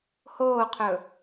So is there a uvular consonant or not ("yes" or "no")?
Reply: yes